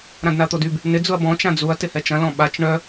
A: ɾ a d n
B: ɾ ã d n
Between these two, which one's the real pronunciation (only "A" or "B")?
B